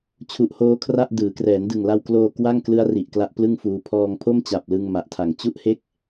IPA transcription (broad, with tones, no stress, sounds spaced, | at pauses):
t͡ɕʰ u˨˩ ʔ h oː˦˥ kʰ r a˥˩ ʔ d ɯː˩˦ k r ɛː˩˦ n d ɯ˨˩ ŋ l a˧ w k l oː˧ k w a˥˩ ŋ k l ɯ˦˥ a̯ r i˨˩ ʔ k l a˦˥ ʔ p l ɯ˥˩ ŋ f uː˧ pʰ ɔː˧ ŋ pʰ o˥˩ m t͡ɕ a˨˩ p̚ l ɯ˧ ŋ m a˨˩ ʔ tʰ a˨˩ ŋ t͡ɕ u˥˩ ʔ h e˥˩ k̚